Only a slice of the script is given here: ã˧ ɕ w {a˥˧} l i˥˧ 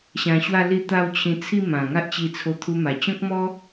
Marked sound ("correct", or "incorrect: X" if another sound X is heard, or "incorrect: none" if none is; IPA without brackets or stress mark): correct